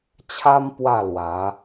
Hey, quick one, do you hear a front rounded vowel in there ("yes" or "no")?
no